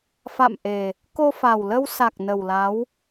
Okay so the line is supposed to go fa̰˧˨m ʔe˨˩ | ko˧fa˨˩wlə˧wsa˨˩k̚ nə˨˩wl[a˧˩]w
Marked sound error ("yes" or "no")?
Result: yes